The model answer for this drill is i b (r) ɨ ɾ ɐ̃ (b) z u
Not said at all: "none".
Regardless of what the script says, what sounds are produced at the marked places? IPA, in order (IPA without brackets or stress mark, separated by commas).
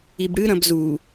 ɽ, b